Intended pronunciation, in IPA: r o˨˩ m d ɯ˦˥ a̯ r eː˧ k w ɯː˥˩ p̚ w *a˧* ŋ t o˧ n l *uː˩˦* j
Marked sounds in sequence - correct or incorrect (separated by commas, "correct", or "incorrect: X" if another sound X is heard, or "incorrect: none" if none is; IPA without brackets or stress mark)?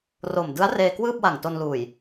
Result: incorrect: a˨˩, incorrect: uː˨˩